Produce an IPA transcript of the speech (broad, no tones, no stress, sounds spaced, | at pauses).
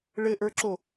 ɭ ɘ ʔ ə˞ ǁ o